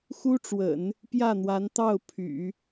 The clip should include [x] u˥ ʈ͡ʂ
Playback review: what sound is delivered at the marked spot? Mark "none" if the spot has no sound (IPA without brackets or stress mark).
x